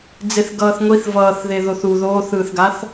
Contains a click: no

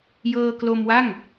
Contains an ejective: no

